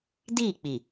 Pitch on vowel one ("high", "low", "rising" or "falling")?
falling